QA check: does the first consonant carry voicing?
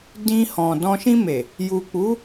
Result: yes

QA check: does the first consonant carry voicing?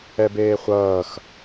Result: yes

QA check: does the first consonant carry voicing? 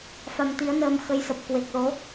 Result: no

